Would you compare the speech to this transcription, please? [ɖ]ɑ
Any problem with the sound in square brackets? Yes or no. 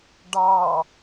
no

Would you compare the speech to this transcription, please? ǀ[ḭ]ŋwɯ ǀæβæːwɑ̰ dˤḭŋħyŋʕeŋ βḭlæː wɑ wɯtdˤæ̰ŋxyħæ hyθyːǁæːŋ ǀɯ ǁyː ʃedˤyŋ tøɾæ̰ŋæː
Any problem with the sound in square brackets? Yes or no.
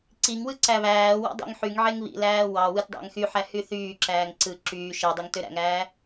yes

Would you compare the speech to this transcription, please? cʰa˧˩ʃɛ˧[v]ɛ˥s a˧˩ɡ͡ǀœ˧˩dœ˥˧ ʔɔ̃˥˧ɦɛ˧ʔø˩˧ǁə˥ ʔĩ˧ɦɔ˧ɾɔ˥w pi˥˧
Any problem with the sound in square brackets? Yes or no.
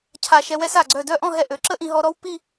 yes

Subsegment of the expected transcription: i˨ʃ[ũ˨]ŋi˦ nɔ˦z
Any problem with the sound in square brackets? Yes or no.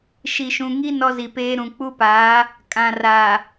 no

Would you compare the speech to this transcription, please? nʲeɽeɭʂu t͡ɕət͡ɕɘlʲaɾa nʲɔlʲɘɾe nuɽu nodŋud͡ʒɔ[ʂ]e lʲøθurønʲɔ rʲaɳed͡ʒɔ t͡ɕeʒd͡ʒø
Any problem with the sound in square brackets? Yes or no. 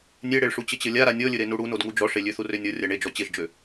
no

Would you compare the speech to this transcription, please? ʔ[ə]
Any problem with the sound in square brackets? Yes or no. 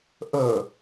no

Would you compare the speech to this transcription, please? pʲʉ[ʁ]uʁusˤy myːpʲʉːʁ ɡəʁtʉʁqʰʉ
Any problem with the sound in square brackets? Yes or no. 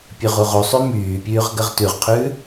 no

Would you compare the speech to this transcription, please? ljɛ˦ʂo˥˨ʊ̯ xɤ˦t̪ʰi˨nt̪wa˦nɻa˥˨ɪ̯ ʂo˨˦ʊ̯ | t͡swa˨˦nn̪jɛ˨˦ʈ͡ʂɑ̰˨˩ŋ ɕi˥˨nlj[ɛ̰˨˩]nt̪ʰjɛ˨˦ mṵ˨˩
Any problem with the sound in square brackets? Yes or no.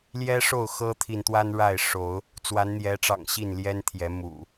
yes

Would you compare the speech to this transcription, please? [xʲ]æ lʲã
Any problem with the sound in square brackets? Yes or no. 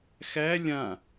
yes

